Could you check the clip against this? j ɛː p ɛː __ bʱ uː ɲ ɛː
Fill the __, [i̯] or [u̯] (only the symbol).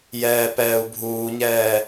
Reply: u̯